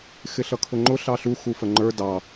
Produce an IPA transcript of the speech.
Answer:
x ɪ ɬ ʌ kʰ ʊ ŋ͡ǃ ʊ ɬ ɑ ɬ u x u f ə ŋ͡ǃ ə˞ d ɑ

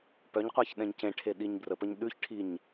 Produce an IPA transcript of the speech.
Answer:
p œ ɲ qʷ a ç ɗ ɛ̃ ɲ c ẽ ʈʰ e ɗ i ɲ b r ə p ə ɲ ɗ ʉ ç ʈʰ i ɲ

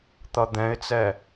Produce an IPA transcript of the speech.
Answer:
t̪ ʌ d̪ ɛ̃ ɪ̯ t͡s ɛ

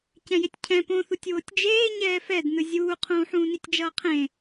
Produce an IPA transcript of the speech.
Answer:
c ɛ̃ j e tʲ cʰ ɛ̃ p õ θ u tʲ w o tʲ d͡ʒ eː ɲ ɛː f ɛ d n ɯ zʲ uː qʰ ũː ħ ũː n i tʲ d͡ʒ ʌː qʰ ẽ

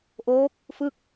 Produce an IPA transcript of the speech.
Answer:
ʔ oː˦˥ k̚ | f ɯ˥˩ k̚

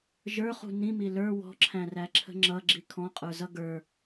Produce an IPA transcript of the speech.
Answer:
ʒ ə˞ χ ṳ n ĩ m i l ə˞ w ɔ̤ ǁʰ æ̃ r æ ǁʰ ə̤ ŋ͡ǁ ʌ ɡ͡ǁ i kʰ ɔ̃ qʼ ə˞ z ʌ ɡ ə˞

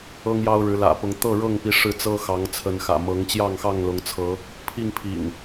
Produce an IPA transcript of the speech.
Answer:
ɤ˦ ŋ j ɑ˦ ʊ̯ ɻ ɻ̩˨˦ l ä̰˨˩ p ʊ˨˦ ŋ t̪ ɤ˥˨ ɻ ɤ˥˨ ŋ p i˨˦ ʂ ɻ̩˥˨ t͡s ɤ˦ x ɑ˨˦ ŋ t͡sʰ ə˨˦ n x ä̰˨˩ m ɤ˨˦ ŋ t͡ɕ j ɑ˥˨ ŋ x ɑ˥˨ ŋ l ʊ˨˦ ŋ t͡sʰ ɤ˨˦ | pʰ i˥˨ ŋ pʰ ḭ˨˩ ŋ

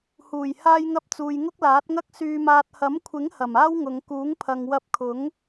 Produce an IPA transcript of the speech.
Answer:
h uː˨˩ j h aː˧ j ŋ ɐ˧ p̚ t͡s uː˨ j ŋ ʊ˥ k̚ l aː˨˥ t̚ ŋ ɐ˥ k̚ s yː˨ m aː˨ t̚ h ɐ˨˥ m kʷʰ ɪ˨˥ ŋ h ɐ˨˩ m aː˥ w ŋ ʊ˨˧ ŋ k uː˨˥ ŋ pʰ ɐ˨ ŋ w ɐ˧ p̚ kʰ ʊ˨˥ ŋ

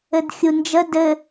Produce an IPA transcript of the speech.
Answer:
ɘ d xʲ u n d͡ʒ ə d ɘ

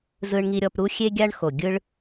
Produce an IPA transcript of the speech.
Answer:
z ɯ˧ ɳ ŋ i˧ ɾʲ ɔ˧ p ɾ u˦ xʲ e˦ ɡʲ a˦ ɳ x o˨ ɡʲ ɯ˦ ɭ

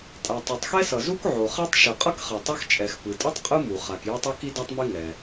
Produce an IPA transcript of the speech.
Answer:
tʼ a˩ tˤ u˩ tˤ x ɛ˥ s ʌ˩ z u˥ k ʕ o˩ χ ɛ˥ tˤ ʃ ɯ˩ qʼ ʌ˥ k χ ɛ˩ tˤ ɛ˥ x t͡ʃʼ ɛ˩ x p ɯ˩ tʼ ɯ˥ tˤ qʼ ɯ˥ m u˩ χ a˩ k j ʌ˥ tˤ ʌ˥ k i˥ d a˥ tˤ m i˥ ŋ ɛ˩

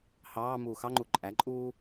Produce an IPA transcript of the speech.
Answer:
h ɑː m uː x ɑ ŋ͡ǃ u ǃʼ æ ǃʼ uː

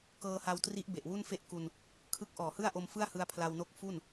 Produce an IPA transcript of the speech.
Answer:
k ɤː˧ h a˧ w t r i˦˥ ʔ b e˨˩ ʔ w u˥˩ n f e˥˩ ʔ k u˧ n | kʰ ɯ˦˥ k̚ ʔ ɔː˨˩ h ɯ˥˩ a̯ ʔ o˧ m f ɯ˥˩ a̯ h ɯ˧ a̯ pʰ l a˧ w n o˦˥ k̚ f u˥˩ n

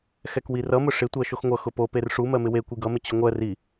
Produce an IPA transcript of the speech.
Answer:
x ɛ k w i r ʌ m ʊ ʂ ɪ tʷ ɜ ʃ o x ŋʷ ʌ x ʊ p o p e r ʂ u m ɜ m ɪ w e kʷ i ɡ ʌ m ɪ t͡ɕ ʊ ŋʷ ɜ r i

